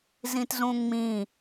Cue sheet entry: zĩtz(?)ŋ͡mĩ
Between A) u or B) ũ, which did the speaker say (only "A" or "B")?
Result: B